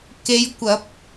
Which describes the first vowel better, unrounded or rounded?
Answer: unrounded